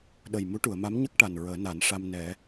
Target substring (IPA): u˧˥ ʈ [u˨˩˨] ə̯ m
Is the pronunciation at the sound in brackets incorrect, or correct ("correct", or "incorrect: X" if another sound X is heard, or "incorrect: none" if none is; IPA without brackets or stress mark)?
correct